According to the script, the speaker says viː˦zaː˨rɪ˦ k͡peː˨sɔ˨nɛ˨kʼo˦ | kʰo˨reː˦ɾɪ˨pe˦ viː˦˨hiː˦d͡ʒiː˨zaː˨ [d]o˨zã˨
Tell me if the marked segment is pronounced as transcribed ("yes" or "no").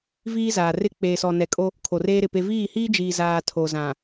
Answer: no